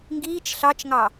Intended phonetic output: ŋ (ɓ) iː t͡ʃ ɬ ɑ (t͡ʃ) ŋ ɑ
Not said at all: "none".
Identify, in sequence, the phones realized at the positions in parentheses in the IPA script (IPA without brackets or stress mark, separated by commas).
ɡ, t͡ʃ